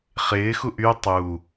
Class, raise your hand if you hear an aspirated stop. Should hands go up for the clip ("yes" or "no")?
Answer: no